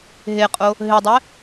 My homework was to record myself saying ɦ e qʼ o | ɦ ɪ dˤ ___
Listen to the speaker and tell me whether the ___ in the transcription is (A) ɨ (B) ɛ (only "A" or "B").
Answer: B